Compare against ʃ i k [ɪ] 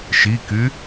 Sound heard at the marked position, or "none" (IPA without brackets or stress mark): y